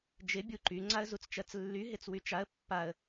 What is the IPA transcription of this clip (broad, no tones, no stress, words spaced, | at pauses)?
d͡ʒɪ bʲuǃy ŋ͡ǀaə̯zut͡st͡ʃɜt͡slːy ɦɪt͡swyt͡ʃaə̯ pːaə̯